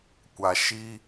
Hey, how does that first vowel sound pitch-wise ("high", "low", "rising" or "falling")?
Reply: low